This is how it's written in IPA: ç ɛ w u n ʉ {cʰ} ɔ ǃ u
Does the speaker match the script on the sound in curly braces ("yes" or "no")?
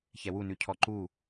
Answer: yes